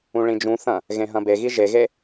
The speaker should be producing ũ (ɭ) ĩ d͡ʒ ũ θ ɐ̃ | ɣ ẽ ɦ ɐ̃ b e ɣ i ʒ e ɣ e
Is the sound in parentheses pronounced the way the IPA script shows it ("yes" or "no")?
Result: yes